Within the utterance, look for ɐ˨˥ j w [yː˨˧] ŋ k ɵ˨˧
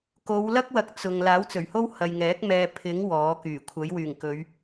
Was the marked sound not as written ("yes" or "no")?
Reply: yes